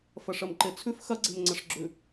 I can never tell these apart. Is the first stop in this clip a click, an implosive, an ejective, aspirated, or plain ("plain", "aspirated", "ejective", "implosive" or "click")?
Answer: click